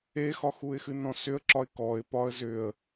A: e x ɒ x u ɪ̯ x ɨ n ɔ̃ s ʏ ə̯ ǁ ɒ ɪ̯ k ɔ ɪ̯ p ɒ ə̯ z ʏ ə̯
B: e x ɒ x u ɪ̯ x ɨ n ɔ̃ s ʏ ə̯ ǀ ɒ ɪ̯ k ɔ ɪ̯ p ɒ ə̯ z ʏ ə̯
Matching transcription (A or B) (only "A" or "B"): A